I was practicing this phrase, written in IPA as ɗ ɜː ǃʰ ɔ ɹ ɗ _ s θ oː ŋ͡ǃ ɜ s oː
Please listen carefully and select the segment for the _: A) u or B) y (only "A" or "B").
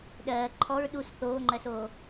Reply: A